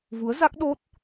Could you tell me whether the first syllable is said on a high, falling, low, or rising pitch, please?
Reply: rising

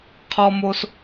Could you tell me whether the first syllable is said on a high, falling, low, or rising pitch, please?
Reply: high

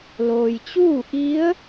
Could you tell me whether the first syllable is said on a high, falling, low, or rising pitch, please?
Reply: low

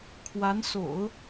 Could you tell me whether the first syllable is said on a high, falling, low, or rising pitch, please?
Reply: rising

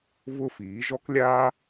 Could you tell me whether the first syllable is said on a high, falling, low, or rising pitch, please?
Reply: high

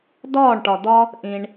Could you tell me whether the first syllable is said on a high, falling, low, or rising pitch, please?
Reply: falling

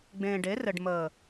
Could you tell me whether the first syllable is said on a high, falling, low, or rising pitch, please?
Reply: low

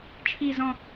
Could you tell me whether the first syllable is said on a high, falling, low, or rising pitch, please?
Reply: low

